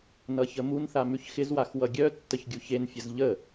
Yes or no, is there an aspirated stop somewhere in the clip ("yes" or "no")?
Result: no